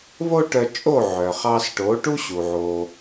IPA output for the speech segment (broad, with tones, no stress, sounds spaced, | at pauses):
β o˥ ʈ œ˧ t͡ʃʼ o˥˩ ʕ œ˩ χ ɑ˧ s ʈ o˩˥ ʈ u˥ ɕ u˩ ʕ o˩